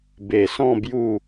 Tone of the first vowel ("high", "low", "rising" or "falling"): low